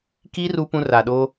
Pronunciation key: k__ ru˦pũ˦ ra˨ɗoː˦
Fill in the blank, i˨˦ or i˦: i˦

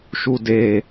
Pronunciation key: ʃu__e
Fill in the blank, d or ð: d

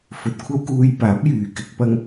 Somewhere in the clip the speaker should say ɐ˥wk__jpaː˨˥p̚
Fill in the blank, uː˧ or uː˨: uː˧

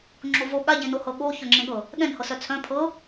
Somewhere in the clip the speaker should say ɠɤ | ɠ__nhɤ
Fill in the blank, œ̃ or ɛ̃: ɛ̃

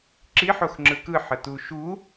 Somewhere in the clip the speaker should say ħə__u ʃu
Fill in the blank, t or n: t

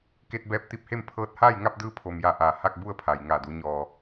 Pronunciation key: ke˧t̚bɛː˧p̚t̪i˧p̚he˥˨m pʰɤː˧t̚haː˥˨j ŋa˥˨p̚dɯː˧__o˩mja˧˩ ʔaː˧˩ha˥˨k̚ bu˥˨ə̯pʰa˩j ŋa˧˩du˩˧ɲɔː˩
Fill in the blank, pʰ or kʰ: pʰ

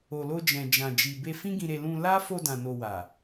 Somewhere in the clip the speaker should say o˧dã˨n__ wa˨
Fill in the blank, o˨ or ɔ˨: o˨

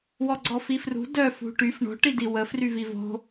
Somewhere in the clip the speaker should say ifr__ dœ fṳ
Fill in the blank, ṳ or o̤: ṳ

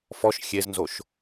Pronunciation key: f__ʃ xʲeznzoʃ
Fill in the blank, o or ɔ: ɔ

